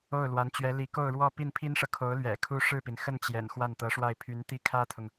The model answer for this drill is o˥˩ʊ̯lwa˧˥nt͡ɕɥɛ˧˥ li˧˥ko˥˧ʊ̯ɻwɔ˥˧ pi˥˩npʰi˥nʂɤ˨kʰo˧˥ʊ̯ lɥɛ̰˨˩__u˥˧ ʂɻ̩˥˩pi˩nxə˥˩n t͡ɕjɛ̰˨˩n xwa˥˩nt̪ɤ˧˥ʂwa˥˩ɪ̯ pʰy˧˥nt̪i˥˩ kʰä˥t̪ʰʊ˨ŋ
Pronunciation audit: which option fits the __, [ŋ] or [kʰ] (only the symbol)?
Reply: kʰ